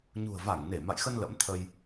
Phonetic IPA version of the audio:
ɲ ṳ˨˩ ə̯ v a˧˩ ŋ n e˧˩ m a̰˧˨ j x ə˧ n l ə̰˧˥ m t̪ʰ ə˧ j

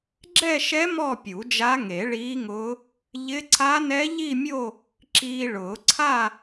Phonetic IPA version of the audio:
ɡ͡ǁ ɛ˥˧ ʃ ɛ˦˥ m ɔ˥˧ pʲ u˨˩˦ d͡ʒ a˦˥ ŋ e˨˩˦ ɭ iː˦˥ ŋ ʊː˦˥ | ʎ ɪ˦˥ ǀʰ a˦˥ n ɛ˦˥ ʎ i˥˧ mʲ o˥˧ | ǁ iː˧ ɭ ʊː˨˩˦ ǀʰ a˥˧

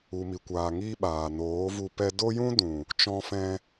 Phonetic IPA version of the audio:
u˨ m i˨ kʷ aː˨ ŋ i˦ ɓ aː˨ n oː˨˦ v u˧ p ɛ˦ d o˦ j ũ˦ d ũ˨ | t͡ʃ ɔ̃˧ f ɛ̃˧

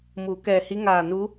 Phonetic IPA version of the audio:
m uː˩˧ k ɛː˧˩ h i˧˥ ŋ aː˧˩ n u˧˥

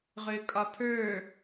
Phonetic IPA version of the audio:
ʁ ø kʼ ɒ pʰ ə˞

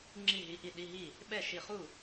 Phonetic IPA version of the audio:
ŋ͡ǁ i˥˨ ɦ i˧˥˧ ʔ i˥˨ ɗ i˧˥˧ ɦ i˥˨ | ɓ ɛ˥˨ ʃ i˥˨ χ u˥˨

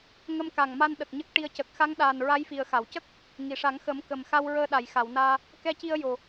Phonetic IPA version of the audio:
ŋ ə˧ m k a˨˩ ŋ m a˧ n ɗ ə˨˩ k̚ ɲ ə˦˥ k̚ ʈ i˧ ə̯ c ə˨˩ k̚ x a˧˥ ŋ ɗ aː˨˩ n ɹ a˧˥ j f i˨˩ ə̯ x a˨˩˨ w c ə˦˥ k̚ | ŋ i˨˩˨ ʂ a˨˩˦ ŋ x ə˨˩˦ m k ə˨˩ m x a˧ w ɹ əː˧ ɗ a˨˩˨ j x a˨˩˨ w n aː˧ | k ɛ˧ c i˧ ə̯ j o˨˩

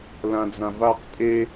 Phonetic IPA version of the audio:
l ã d͡z ã v a q tʼ e

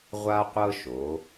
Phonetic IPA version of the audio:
ʁʷ a˦ qʷ ɤ˦ ʃ o˩˧

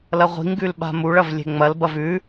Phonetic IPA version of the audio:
l ɐ ʁʷ i̤ ŋ ɡ ʉ l ɓ a̤ m u ɭ ɐ v lʲ e̤ ŋ͡m ɐ l b ɐ v ʉ

